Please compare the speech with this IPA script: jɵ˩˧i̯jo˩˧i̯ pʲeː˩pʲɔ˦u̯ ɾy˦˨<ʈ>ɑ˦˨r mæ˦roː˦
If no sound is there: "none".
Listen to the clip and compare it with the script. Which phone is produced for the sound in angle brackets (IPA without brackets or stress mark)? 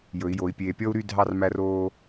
dʱ